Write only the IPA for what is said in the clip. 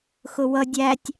x ʊ w ʌ dʲ æ tʲ

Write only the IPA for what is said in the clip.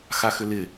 x a x ʏ l ɪ

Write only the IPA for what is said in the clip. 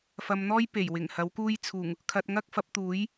f ɐ˧ m n̪ ɔː˥ j p e˨˩ j w ɪ˨˩ ŋ h ɐ˨˥ w k uː˥ j t͡sʰ uː˨˩ ŋ | kʰ ɐ˧ t̚ ŋ ɐ˥ k̚ f ɐ˨˥ p̚ t̪ uː˨˥ j

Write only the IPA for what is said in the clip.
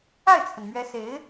a˥˩ ɪ̯ t͡sʰ ə˩ n m ɥ ɛ˧˥ s e˧˥ ɪ̯

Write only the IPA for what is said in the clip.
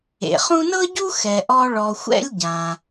ḛ˩ χ ũ˦ n ɤ˥ ɟ u˥ x ɛ˨ ʔ ɔ˥ ɭ ɔ˨ xʷ ɛ̰˦ lʲ ɟ ã˨

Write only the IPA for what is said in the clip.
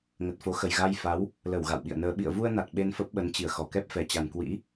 ŋ ə˨˩ t̚ f o˨˦ x ə˨˩ j ɣ a˧ j f a˨˦ w | l ə˧˩ w ɣ a̰˧˨ w ɓ ḭ˧˨ ə̯ n əː˧ ɓ ḭ˧˨ ə̯ v u˧ ə̯ n a˨˩ t̚ ɓ e˧ n f ə˦˥ p̚ ɓ ə˨˦ n t͡ɕ i˧˩ ə̯ x ɔ˧˩ k ɛ˦˥ p̚ f ɛ˨˩ t͡ɕ a˨˩ n k w ḭ˧˥

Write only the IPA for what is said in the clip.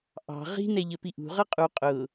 ʔ ɑ̤ ʁ i̤ n ɛ ʎ ə p i ʔ ṳ ʁ ʌ qʼ u qʼ ʊ

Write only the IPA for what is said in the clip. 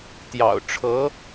t̪ j ɑ̰˨˩ ʊ̯ ʈ͡ʂʰ ɤ˧˥

